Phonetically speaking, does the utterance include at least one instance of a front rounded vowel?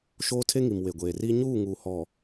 no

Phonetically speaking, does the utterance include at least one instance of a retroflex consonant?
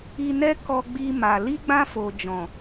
no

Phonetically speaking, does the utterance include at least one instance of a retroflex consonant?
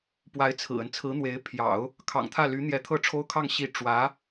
yes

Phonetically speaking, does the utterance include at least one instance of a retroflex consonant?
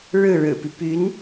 yes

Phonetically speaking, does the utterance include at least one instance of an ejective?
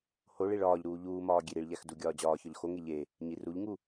no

